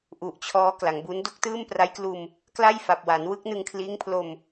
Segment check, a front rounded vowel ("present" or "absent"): absent